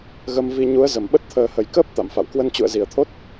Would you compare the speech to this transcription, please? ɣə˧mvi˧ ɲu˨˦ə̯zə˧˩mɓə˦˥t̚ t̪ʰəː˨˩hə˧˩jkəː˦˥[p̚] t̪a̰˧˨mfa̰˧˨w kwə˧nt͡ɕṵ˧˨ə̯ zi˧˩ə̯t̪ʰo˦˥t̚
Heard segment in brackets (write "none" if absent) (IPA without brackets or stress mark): p̚